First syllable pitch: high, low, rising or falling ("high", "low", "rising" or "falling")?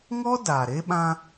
high